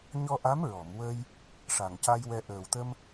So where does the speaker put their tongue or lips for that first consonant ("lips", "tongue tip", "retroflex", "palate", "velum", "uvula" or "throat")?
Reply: palate